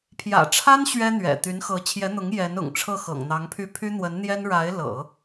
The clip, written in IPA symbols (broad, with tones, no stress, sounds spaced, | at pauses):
pʰ j ä̰˨˩ ʈ͡ʂʰ a˥ n ɕ ɥ ɛ˥ n̪ ɥ ɛ̰˨˩ t̪ y˧˥ n x ɤ˧˥ t͡ɕʰ j ɛ˧˥ n̪ ʊ˧˥ ŋ j ɛ˧˥ n ʊ̰˨˩ ŋ ʈ͡ʂʰ ɤ˥˩ x ɤ̰˨˩ ŋ n̪ ɑ˧˥ ŋ pʰ y˥˩ pʰ y˥ n̪ w ə˧˥ n n̪ j ɛ˥ n ɻ a˧˥ ɪ̯ l ɤ̰˨˩˦